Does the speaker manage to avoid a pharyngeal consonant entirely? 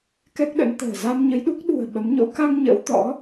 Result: yes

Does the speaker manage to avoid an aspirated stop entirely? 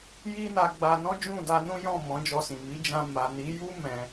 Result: yes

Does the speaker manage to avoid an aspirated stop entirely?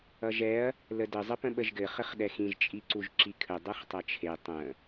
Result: no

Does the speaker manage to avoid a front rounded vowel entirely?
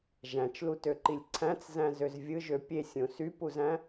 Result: no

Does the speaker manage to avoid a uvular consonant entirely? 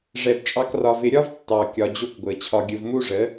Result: yes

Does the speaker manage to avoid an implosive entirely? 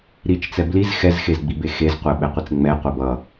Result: no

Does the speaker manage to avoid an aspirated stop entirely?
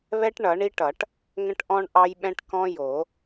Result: yes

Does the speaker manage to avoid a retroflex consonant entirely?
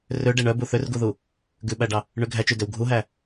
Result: no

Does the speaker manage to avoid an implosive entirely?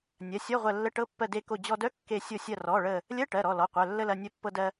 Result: yes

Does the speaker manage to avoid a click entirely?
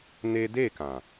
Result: yes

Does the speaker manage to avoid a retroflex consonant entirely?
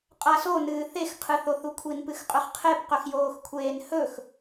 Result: yes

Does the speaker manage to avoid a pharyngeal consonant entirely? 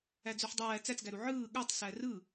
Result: no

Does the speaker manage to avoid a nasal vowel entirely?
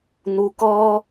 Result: yes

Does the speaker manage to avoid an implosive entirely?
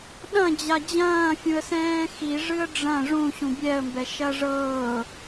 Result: no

